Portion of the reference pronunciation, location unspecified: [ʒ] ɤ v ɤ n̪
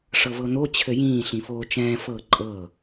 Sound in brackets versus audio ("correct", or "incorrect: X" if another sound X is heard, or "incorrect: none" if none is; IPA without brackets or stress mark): incorrect: ʂ